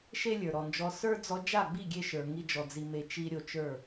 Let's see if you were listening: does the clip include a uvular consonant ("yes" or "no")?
no